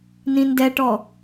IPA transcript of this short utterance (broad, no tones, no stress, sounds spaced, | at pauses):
n ĩ n d ɛ ʈ ɔ